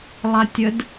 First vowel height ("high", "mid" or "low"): low